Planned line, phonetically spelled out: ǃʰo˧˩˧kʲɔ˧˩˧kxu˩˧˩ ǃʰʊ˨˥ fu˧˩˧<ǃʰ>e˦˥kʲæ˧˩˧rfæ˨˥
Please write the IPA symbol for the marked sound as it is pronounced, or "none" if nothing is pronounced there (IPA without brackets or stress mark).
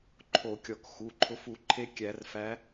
ǃʰ